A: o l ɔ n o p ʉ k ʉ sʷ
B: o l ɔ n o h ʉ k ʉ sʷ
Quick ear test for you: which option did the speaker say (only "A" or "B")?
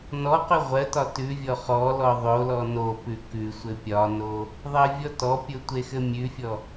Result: A